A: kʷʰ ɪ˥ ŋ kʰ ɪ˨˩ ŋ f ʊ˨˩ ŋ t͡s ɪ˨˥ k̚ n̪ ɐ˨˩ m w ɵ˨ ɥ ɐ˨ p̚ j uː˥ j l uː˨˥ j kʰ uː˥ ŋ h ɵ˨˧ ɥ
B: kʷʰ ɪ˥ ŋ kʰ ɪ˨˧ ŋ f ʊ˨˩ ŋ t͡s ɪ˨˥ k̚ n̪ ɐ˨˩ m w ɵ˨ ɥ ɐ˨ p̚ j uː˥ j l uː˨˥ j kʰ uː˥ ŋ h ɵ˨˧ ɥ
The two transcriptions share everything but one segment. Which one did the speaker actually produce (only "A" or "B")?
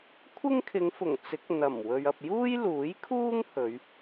B